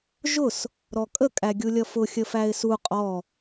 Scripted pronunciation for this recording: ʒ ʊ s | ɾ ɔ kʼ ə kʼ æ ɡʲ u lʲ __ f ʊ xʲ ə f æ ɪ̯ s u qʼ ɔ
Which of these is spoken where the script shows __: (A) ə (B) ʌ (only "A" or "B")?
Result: B